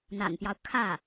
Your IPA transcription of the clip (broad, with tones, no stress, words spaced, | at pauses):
n̪a̰˨˩npjɑ˦ʊ̯ kʰä˥˩